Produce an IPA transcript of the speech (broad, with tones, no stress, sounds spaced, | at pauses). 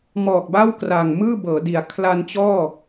m ɔː˨˩ k̚ b aː˥˩ w k r a˨˩ ŋ m ɯː˥˩ b ɤː˩˦ d i˩˦ a̯ kʰ l a˧ n t͡ɕ ɔː˥˩